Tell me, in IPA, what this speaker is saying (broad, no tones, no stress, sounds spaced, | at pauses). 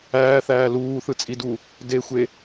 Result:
æː θ æː l uː θ ɯ t͡sʼ i d u | d e xʷ e